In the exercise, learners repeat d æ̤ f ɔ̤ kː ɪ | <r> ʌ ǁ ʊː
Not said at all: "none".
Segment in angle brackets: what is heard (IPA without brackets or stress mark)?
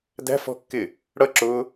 ɽ